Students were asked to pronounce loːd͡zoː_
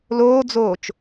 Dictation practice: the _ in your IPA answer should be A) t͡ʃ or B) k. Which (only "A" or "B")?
A